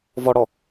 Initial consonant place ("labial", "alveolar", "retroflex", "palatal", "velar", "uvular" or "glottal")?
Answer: labial